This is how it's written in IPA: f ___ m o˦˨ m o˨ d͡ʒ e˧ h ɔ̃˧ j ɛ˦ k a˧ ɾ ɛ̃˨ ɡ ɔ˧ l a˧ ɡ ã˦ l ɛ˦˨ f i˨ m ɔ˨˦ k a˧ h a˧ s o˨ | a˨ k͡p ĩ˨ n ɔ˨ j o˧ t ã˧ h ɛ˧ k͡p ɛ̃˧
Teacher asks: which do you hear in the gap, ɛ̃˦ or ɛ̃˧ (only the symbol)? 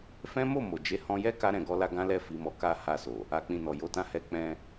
ɛ̃˦